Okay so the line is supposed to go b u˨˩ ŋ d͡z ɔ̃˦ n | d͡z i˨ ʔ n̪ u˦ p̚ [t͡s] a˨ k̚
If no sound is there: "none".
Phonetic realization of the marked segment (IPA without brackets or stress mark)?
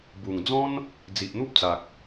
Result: t͡s